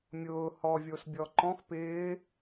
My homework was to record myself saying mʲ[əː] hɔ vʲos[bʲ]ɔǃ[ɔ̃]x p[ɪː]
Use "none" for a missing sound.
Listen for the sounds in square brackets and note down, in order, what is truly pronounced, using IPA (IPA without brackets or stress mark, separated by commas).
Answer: ʊː, bʲ, ɔ̃, ɪː